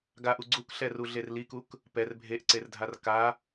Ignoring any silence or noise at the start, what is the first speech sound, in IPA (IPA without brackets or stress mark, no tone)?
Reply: ɡ